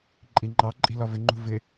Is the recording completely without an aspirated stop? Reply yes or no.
yes